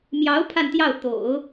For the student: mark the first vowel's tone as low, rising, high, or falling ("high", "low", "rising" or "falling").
rising